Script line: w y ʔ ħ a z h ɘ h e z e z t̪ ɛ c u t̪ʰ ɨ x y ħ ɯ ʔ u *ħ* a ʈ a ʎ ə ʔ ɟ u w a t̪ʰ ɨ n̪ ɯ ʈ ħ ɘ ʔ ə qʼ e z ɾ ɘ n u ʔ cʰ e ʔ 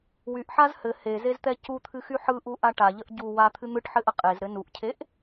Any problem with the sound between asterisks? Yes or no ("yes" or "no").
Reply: yes